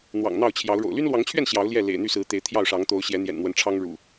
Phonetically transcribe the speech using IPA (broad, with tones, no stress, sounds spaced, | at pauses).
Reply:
n̪ w ɑ̰˨˩ ŋ n̪ ɑ˥˨ ʊ̯ t͡ɕʰ j ɑ˨˦ ʊ̯ ɻ o̰˨˩ ʊ̯ l y˦ n l w ɑ˨˦ ŋ t͡ɕʰ ɥ ɛ˥˨ n ɕ j ɑ˨˦ ʊ̯ l j ɛ˥˨ l ḛ˨˩ ɪ̯ n̪ y˥˨ s ɹ̩˨˦ t̪ e˨˦ ɪ̯ t̪ʰ j ɑ˥˨ ʊ̯ ʂ ɑ˨˦ ŋ t̪ o˨˦ ʊ̯ ɕ j ɛ˨˦ n̪ j ɛ̰˨˩ n n̪ w ə˨˦ n ʈ͡ʂʰ ɑ˦ ŋ ɻ ṵ˨˩